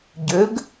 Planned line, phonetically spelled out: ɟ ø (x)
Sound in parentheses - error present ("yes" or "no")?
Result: yes